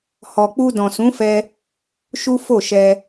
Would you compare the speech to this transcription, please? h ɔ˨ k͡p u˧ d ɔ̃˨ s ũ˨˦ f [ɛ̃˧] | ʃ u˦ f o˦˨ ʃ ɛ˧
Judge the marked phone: incorrect: ɛ˧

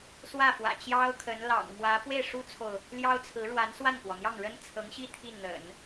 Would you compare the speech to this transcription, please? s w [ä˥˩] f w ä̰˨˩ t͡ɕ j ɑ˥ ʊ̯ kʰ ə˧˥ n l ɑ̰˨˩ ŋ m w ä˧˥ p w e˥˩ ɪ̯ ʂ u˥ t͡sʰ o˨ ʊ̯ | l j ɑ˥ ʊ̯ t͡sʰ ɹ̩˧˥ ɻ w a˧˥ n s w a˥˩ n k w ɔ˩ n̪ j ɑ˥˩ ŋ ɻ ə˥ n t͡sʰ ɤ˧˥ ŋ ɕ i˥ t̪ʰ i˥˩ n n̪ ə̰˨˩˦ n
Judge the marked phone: correct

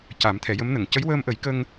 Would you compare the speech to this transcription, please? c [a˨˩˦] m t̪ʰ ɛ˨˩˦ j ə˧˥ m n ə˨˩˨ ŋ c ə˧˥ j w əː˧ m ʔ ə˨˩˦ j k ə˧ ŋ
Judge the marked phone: correct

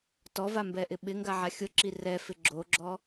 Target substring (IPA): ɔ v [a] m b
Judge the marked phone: correct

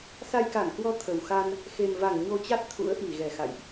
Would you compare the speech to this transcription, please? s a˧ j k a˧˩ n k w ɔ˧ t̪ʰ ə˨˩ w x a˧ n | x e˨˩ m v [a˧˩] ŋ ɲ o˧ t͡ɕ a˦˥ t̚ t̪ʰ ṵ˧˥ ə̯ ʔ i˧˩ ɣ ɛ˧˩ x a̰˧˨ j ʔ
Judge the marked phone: correct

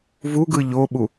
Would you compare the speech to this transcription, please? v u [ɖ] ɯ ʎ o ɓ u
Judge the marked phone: incorrect: ɡ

